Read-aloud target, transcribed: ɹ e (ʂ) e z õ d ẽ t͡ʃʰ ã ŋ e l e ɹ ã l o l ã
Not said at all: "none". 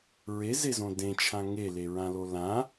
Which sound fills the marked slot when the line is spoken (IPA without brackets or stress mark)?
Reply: z